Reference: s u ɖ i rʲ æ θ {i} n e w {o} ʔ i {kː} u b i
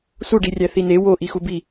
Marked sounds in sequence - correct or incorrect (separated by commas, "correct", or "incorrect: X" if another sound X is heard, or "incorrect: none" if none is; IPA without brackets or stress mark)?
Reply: correct, correct, incorrect: x